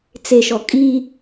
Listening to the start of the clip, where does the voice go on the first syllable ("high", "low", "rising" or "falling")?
low